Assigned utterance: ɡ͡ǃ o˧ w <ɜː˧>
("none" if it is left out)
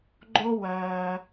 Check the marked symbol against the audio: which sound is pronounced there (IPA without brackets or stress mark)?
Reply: ɜː˧